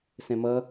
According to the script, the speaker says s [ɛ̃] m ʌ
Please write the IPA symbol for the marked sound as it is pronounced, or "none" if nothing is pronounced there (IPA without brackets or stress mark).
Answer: ɛ̃